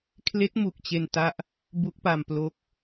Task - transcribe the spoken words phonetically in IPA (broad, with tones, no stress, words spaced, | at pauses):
kʰle˦˥k̚mu˨˩k̚ t͡ɕe˧nta˦˥ʔ | bu˦˥k̚pa˧m plo˦˥k̚